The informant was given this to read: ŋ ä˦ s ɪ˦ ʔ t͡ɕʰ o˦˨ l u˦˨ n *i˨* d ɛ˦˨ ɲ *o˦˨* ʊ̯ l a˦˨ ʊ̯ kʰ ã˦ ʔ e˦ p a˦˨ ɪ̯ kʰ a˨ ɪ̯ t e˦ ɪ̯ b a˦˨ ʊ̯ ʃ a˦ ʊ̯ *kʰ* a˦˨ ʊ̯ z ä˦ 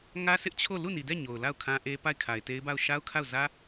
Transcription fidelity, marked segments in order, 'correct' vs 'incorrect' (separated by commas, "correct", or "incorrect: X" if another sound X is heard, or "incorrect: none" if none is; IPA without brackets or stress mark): correct, incorrect: o˨, correct